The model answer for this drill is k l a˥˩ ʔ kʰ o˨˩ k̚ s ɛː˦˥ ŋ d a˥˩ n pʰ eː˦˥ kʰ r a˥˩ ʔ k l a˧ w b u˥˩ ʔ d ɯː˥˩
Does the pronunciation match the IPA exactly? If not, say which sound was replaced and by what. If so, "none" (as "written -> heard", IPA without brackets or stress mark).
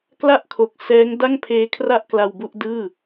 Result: n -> ŋ